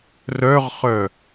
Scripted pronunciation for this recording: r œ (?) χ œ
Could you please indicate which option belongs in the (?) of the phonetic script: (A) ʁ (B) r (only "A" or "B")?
A